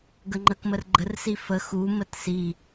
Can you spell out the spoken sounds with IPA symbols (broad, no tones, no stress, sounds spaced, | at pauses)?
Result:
ɡ ə ŋ͡ǃ ə k m ə r ɡ͡ǃ ə r s i f ə x u m ə t s i